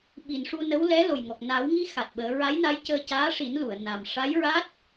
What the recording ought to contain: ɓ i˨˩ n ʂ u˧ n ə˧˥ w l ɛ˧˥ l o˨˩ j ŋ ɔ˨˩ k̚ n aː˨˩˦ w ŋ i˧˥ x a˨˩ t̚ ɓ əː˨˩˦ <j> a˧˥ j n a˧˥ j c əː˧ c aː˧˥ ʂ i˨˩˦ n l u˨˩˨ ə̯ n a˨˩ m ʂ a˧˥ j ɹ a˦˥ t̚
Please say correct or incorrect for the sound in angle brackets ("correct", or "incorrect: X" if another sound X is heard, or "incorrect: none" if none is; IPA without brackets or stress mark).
incorrect: ɹ